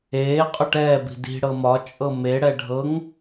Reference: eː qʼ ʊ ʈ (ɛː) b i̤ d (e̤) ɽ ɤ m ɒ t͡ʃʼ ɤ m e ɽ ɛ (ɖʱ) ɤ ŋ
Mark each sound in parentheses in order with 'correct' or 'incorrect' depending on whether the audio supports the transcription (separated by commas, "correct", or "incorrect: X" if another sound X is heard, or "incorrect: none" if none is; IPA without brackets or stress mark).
correct, incorrect: i̤, correct